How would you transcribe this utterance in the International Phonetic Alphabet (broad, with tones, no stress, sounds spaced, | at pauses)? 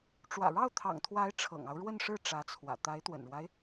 ʈ͡ʂ w ä̰˨˩ ɻ ɑ˥˩ ʊ̯ t̪ʰ ɑ̰˨˩ ŋ t̪ʰ w a˧˥ ɪ̯ ʈ͡ʂʰ ɤ̰˨˩ ŋ ɑ˦ ʊ̯ ɻ w ə˥˧ n ʂ ɻ̩˥˩ ʈ͡ʂ ä˧˥ t͡sʰ w ä̰˨˩ t̪ a˧˥ ɪ̯ t̪ w ə̰˨˩ n ɻ w a˦ ɪ̯